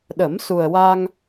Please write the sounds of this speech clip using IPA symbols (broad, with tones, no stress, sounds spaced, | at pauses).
ɗ ə˨˩˦ m s u˨˩ ə̯ w a˧ ŋ